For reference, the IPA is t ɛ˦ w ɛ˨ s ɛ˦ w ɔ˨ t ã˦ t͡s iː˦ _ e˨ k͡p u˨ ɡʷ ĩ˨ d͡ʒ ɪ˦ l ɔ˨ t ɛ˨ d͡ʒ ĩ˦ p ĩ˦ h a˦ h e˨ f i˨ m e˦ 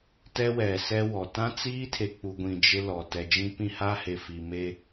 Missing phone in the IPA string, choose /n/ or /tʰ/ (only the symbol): tʰ